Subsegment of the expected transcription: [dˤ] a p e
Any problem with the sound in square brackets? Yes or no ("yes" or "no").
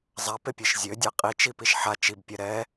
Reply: yes